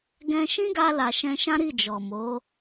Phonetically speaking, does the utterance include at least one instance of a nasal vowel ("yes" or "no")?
yes